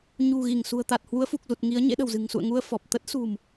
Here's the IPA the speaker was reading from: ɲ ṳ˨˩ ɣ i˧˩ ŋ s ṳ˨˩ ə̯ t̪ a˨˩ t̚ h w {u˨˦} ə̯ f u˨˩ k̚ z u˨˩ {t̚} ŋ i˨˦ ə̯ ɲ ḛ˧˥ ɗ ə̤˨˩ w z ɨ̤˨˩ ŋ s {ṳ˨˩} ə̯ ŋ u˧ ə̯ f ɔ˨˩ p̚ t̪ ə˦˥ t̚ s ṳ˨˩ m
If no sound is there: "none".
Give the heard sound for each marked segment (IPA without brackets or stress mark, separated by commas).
u˨˦, t̚, ṵ˧˨